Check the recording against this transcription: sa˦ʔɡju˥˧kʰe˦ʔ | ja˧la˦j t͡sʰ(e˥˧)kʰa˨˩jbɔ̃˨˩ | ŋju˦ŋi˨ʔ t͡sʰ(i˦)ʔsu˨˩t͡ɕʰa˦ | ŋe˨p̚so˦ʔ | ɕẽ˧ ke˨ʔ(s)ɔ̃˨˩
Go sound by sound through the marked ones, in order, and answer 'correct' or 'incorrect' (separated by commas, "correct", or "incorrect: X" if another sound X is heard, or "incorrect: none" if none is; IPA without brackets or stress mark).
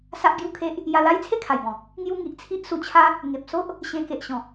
correct, correct, incorrect: ɕ